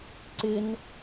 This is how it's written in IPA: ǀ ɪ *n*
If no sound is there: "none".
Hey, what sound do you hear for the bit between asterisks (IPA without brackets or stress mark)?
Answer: n